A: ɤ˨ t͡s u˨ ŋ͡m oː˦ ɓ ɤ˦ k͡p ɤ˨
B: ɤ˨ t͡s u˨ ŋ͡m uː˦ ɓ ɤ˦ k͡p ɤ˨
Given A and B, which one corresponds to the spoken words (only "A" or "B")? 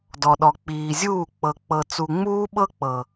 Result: B